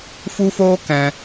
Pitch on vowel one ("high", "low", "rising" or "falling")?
high